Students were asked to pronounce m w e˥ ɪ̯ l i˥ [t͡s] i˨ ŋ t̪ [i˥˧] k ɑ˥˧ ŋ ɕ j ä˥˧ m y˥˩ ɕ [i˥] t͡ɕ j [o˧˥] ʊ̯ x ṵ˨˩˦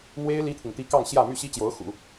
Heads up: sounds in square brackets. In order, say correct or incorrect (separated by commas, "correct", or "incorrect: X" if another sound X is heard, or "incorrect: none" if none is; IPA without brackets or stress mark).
incorrect: t̪ʰ, correct, correct, correct